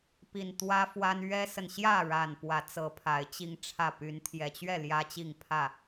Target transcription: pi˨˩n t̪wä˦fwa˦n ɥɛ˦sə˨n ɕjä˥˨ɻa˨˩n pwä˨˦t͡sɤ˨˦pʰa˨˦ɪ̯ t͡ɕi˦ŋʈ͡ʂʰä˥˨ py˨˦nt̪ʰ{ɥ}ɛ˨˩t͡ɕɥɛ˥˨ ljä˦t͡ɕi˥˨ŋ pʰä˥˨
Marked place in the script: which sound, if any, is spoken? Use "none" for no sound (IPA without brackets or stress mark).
j